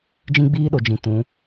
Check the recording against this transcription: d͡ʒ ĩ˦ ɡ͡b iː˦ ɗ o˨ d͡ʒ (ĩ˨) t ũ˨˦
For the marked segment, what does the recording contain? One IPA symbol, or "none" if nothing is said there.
ĩ˨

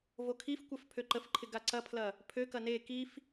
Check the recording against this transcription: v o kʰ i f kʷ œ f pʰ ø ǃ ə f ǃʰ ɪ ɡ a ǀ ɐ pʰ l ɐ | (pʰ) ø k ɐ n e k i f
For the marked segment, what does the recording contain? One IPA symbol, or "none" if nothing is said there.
pʰ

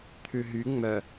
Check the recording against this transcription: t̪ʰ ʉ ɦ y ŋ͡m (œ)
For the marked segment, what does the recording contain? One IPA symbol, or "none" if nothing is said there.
œ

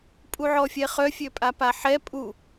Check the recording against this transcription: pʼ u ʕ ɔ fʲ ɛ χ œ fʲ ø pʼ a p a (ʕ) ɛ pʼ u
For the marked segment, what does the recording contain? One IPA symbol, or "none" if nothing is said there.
ħ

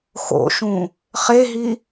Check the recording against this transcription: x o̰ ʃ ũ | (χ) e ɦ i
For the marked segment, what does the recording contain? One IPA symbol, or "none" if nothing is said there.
χ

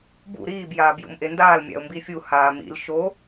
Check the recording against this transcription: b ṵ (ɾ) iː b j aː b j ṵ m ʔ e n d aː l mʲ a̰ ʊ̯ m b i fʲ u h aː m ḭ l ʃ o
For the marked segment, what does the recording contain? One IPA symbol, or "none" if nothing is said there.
ɾ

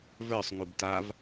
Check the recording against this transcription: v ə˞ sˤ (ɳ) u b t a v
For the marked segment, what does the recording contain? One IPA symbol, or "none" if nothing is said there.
ŋ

